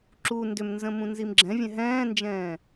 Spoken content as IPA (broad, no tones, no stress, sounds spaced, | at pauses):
ǁ u n d ʏ m n z ə̃ m ũ n z i m ɡ͡ǁ ɛ̃ vʲ ɛ̃ ɦ ɛ̃ː n d͡ʒ ɛ̃ː